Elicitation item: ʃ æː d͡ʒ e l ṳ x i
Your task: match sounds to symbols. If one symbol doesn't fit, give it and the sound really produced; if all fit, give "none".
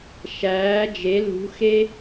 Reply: i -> e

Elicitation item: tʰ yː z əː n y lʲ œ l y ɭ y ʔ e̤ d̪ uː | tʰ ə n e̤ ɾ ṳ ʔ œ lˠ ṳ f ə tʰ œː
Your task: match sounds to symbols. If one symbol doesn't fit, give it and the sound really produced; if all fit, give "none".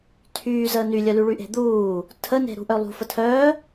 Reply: none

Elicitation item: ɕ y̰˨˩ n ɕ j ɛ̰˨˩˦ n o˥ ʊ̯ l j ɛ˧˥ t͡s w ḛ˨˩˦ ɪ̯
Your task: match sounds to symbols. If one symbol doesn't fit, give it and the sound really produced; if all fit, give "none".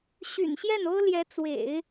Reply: ɛ̰˨˩˦ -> ɛ˥˩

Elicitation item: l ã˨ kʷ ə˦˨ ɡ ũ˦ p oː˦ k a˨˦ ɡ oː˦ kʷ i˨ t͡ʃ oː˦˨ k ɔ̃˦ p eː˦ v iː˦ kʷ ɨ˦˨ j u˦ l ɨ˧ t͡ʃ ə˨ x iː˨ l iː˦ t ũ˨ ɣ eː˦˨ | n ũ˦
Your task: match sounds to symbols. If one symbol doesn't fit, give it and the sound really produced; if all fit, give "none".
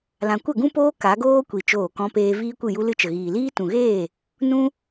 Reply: x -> ɣ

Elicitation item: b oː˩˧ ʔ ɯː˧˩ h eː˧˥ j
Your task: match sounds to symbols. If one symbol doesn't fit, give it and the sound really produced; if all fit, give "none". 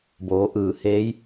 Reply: none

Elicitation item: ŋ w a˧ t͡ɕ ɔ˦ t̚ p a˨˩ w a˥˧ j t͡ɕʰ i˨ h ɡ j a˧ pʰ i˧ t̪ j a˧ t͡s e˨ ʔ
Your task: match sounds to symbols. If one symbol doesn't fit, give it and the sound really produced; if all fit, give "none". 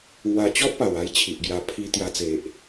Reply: h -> ʔ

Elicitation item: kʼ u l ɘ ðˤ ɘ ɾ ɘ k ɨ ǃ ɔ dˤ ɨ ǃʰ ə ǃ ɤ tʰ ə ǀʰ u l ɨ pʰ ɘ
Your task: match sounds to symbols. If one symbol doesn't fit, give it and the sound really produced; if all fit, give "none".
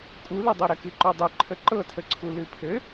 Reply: ðˤ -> dˤ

